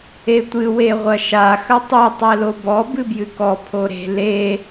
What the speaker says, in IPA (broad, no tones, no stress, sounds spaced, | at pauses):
e tʷ ɨ w e ʁʷ ɐ ʃ a x ɐ tˤ u tˤ ɛ l o b ɔ b ɨ b j ɨ k ɔ pʰ o ɾ e̤ l e